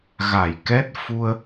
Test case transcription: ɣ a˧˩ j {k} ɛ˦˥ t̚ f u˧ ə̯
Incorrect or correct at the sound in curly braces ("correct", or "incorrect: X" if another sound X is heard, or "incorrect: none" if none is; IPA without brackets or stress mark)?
correct